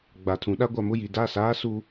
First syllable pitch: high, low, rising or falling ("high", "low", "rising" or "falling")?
low